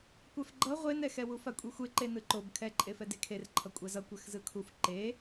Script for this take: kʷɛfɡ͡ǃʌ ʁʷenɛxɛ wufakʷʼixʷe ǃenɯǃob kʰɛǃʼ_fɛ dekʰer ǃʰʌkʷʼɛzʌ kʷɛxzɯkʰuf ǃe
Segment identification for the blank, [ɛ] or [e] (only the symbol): e